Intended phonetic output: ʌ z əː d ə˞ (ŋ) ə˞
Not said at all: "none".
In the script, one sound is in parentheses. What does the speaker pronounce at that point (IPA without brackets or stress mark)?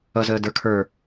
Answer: kʰ